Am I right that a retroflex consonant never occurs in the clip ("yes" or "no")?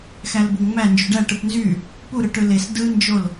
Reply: no